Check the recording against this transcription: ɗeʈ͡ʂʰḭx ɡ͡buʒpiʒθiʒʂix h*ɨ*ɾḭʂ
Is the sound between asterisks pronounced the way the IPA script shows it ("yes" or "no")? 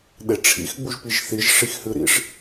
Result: yes